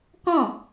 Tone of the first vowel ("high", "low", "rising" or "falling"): falling